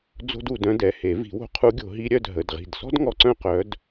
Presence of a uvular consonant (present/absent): present